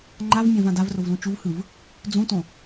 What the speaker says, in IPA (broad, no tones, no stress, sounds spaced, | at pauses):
ŋ͡ǃ a v mʲ ã v ã d a v r o v l ũ t͡ʃ u v h ɯ v | d͡z ũ t õ